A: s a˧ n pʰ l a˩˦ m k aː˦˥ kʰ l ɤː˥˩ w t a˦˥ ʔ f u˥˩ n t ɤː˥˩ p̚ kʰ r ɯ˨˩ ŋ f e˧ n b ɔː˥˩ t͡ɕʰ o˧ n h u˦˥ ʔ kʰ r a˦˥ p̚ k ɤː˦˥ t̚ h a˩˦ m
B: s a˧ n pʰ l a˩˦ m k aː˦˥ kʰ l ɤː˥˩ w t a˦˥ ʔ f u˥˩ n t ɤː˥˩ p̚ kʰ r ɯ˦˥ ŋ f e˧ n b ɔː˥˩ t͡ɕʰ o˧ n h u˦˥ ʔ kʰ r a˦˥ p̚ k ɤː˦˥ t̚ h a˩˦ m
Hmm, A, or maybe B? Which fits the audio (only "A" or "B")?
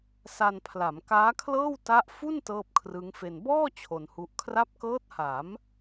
B